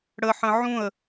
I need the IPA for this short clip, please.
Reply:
ɽ ə ħ ə̃ ʕ ũ ə̯

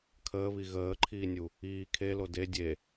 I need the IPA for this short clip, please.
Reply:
kʰ əː β i ɣ əː ǃʰ iː nʲ u | iː kʰ e l o d e dʲ e

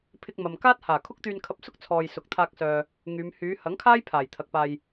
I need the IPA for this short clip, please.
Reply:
pʰ ɪ˧ k̚ m ɐ˨ m k aː˥ t̚ h aː˨˩ kʰ ʊ˥ k̚ t̪ yː˧ n kʰ ɐ˧ p̚ s ʊ˥ k̚ t͡sʰ ɔː˨ j s ʊ˨ k̚ t̪ʰ aː˧ k̚ s œː˨ | ŋ yː˨˧ m h yː˨˧ h ɐ˨˥ ŋ kʰ aː˥ j pʰ aː˨˩ j t̪ʰ ɐ˨ k̚ p aː˨ j

